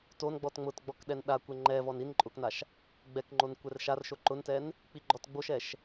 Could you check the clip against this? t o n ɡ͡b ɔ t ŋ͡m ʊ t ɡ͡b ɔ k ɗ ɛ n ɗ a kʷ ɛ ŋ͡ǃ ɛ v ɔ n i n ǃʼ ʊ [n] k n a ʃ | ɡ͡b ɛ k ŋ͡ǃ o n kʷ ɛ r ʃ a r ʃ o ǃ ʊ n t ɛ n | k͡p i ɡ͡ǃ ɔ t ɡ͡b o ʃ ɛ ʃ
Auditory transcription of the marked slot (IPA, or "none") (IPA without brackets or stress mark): none